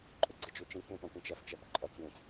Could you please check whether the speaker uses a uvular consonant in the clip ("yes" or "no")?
no